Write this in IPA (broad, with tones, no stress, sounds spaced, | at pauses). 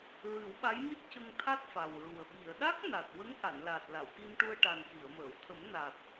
ɹ ɨ˨˩˦ w ɓ a˧˥ j m i˦˥ t̚ c ə˧ ŋ t̪ʰ a˦˥ t̚ f a˨˩ w ɹ u˨˩ ə̯ ɓ i˨˩˨ ə̯ ɗ a˦˥ k̚ n a˨˩ t̚ w ə˧˥ ŋ ʔ a˨˩˨ n l a˨˩ t̚ l a˨˩˨ w k i˧ m ʈ u˧ ə̯ ʈ a˨˩ n k i˨˩˨ ə̯ m əː˨˩˨ w t̪ʰ ə˨˩˦ m n a˨˩ t̚